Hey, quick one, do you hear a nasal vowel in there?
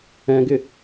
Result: yes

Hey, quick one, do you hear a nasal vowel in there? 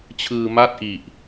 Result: no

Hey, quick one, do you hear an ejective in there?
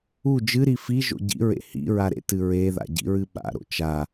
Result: no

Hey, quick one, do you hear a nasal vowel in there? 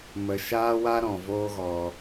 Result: yes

